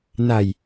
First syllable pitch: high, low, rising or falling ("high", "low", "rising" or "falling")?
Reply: low